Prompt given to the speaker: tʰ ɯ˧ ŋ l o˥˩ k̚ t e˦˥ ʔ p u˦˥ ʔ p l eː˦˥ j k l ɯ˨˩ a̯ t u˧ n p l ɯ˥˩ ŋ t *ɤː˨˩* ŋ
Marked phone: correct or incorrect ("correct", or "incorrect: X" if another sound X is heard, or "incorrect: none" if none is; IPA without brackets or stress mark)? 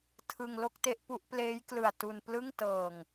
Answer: correct